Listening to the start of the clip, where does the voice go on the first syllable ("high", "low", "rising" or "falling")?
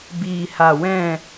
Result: low